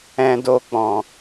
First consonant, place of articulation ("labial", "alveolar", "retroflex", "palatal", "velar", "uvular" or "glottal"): alveolar